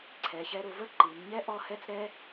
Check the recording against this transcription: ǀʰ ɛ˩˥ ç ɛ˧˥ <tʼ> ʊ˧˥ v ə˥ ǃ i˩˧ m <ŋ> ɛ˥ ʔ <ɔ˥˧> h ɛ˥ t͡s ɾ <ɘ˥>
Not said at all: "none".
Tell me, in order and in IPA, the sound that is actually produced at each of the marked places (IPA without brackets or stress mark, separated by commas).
ɾ, ɲ, ɔ˥˧, ɛ˥